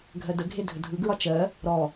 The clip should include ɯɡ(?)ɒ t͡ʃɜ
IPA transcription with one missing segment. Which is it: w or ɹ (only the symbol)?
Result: ɹ